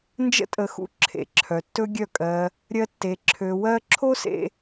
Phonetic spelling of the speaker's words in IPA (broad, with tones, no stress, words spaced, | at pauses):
nd͡ʒə̰˦tʼə˧ xṵ˧ǁʰḛ˨ǁʰœ˨ tːɵ˦ɡʲœ˦˨kʼɜ˧ | ɾʲɜ˦tːe˧ ǁʰø˧wɜ˦ ǁʰo˦sḛ˧